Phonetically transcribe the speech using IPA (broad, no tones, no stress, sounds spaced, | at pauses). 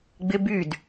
ɡ͡b ɪ b y d